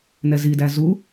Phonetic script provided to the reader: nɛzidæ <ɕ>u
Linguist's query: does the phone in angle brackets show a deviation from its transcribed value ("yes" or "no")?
yes